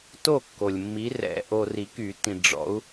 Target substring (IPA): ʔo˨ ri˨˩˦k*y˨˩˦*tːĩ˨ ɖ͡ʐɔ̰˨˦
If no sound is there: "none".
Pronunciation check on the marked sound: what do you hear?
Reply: y˨˩˦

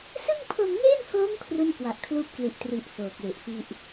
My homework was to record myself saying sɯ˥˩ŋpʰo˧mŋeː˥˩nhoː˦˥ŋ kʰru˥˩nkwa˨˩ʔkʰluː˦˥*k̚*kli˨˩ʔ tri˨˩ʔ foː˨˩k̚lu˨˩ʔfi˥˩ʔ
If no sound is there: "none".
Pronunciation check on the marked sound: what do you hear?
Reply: p̚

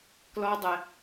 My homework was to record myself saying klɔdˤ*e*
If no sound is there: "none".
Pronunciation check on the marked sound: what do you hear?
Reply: ɛ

